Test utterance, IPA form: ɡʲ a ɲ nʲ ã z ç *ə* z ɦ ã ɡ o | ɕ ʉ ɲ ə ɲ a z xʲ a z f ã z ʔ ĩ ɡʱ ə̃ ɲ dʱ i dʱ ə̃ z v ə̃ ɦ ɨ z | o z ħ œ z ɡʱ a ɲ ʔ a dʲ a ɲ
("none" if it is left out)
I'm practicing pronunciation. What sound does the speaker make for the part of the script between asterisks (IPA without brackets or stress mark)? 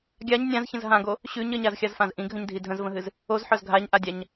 ə̃